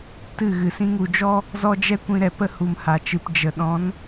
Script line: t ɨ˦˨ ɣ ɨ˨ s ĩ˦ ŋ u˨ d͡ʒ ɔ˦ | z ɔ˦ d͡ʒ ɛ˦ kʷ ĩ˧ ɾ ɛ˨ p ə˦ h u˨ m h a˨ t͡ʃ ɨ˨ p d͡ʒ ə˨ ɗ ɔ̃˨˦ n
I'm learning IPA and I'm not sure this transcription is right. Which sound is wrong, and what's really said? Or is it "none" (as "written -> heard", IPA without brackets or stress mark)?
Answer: none